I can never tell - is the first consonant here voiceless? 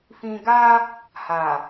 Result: yes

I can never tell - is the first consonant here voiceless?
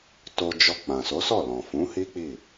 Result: yes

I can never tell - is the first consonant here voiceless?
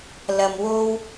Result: no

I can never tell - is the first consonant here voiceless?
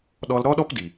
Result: no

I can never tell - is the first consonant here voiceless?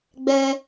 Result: no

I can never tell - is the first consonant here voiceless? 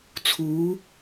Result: yes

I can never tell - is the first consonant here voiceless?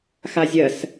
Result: yes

